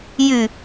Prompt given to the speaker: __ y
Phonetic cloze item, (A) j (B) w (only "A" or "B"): A